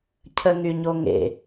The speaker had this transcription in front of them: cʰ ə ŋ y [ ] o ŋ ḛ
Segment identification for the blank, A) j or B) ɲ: B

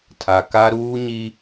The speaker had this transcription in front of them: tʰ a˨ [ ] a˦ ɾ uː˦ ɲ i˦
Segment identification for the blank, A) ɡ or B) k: B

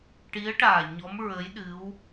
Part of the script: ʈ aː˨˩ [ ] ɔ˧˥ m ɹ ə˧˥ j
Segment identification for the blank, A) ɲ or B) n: A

